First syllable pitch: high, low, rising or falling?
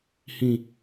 high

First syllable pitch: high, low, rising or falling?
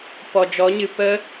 low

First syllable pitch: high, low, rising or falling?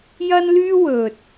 high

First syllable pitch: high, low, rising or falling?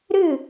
falling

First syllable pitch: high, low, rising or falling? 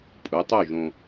rising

